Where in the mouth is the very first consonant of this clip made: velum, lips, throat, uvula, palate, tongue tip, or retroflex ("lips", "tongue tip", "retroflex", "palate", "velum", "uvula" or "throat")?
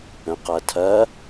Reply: uvula